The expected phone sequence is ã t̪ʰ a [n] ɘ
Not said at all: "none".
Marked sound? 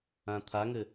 ŋ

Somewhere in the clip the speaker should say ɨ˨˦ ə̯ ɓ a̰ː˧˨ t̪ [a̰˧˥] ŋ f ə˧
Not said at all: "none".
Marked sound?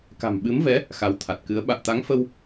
a˨˦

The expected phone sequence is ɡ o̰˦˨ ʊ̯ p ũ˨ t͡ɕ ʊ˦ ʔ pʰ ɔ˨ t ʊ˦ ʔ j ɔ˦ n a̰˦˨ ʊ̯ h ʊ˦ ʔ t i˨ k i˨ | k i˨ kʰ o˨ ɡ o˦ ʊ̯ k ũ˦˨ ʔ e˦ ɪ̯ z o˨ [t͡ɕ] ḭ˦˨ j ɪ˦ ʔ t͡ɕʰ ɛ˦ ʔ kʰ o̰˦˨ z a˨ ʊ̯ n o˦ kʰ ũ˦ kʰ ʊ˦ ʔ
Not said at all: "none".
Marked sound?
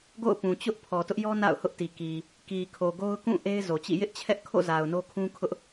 t͡ɕ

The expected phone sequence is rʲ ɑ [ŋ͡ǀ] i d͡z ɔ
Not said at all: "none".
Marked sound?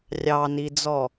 n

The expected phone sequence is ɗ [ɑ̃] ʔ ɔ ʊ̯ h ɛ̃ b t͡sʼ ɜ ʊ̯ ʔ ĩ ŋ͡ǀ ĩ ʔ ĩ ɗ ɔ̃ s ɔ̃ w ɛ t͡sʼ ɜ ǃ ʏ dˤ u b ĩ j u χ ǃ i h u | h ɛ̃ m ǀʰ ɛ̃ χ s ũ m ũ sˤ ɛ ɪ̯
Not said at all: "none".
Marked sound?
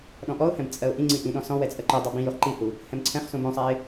ɔ̃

